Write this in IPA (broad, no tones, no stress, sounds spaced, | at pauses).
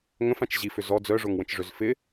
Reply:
ŋ ə̃ f ã t͡ʃ ʑ i f ʏ z ɔ d͡z œ ʐ o ŋ w ə̃ t͡ʃ ʐ ø z f ɪ